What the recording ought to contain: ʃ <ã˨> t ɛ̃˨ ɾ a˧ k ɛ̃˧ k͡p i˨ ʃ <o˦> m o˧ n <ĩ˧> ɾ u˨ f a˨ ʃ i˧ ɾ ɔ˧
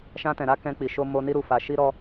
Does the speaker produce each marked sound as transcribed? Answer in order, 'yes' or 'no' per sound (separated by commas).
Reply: no, no, no